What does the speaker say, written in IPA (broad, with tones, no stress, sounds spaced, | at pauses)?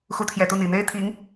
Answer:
x u˧˥ t̪ʰ j ɛ˨˩ t̪ u˥˩ n̪ i˨˩ n̪ e˥ ɪ̯ t̪ʰ i˧˥ ŋ